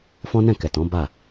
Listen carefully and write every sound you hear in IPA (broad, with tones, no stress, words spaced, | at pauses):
fɔ̃˦nɛ̃˦˨kɛ˨tɔ̃˨˦ ba˦˨